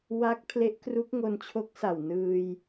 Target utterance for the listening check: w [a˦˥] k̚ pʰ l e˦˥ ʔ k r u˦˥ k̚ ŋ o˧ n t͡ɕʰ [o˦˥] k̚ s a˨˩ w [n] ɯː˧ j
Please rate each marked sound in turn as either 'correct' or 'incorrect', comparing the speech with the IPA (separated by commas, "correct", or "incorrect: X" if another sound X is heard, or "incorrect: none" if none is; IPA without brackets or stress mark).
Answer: correct, correct, correct